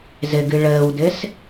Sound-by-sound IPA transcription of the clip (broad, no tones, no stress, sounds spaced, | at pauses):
z ɘ ɡ ɨ ɭ əː w d ɘ s